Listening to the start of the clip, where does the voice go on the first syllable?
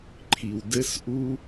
low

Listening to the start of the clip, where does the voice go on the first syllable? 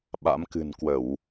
rising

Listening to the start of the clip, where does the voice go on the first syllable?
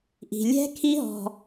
low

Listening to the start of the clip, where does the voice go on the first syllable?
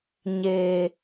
low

